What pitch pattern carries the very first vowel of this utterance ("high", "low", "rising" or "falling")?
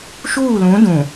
falling